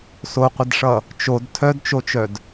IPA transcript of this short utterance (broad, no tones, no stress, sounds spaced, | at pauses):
s o qʷ ə d ʂ ʌ | t͡ʃ o d tʰ œ d t͡ʃ o t͡ʃ œ d